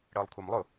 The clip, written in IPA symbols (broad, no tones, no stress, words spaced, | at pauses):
ɽəːlˠkʷʰamlˠʊ